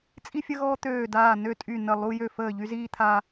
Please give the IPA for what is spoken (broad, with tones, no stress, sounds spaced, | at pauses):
t͡sʼ i˧ fʲ ə˧ ɣ ɔː˧ t̪ øː˧˩ d aː˧˩ n ø˧˩ tʼ y˧˩ n ə˧˩ lˠ u˧ j ø˧˩ f əː˧˩ ʎ y˧ z iː˧ t̪ʰ a˧